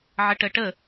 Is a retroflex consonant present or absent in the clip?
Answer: present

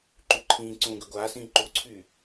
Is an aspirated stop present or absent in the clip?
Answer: present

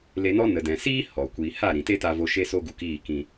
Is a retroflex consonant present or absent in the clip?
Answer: absent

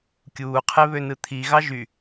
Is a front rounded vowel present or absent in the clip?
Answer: present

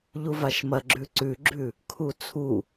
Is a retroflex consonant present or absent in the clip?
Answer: absent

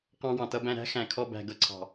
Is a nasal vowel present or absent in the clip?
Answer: present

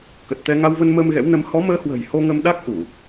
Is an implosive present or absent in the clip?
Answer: present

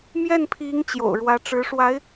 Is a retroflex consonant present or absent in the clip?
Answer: present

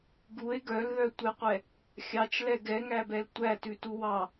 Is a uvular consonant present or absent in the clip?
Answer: present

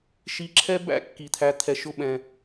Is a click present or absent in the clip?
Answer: present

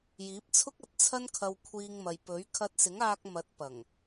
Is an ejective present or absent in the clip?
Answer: absent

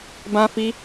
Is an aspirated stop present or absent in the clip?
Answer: absent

